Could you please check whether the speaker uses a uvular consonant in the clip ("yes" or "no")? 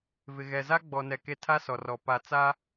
no